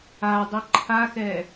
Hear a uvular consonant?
no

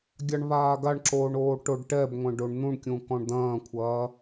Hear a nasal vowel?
yes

